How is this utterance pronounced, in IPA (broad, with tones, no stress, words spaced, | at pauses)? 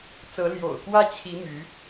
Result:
t͡sɤ˧˥ ljo̰˨˩ʊ̯kwä˥˩t͡ɕʰi˧˥ my˧˥